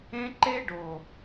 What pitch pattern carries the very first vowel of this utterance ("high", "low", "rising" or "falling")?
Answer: high